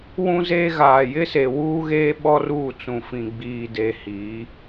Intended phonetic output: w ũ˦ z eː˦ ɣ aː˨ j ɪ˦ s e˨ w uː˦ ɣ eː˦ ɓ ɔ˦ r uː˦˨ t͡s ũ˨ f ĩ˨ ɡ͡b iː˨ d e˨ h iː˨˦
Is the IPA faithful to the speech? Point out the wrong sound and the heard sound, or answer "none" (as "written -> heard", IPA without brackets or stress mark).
none